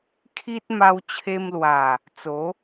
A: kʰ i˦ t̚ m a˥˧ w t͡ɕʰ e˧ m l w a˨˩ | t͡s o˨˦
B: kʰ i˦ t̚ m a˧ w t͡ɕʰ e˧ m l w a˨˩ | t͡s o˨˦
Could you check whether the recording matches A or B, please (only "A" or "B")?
B